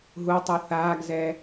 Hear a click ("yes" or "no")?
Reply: no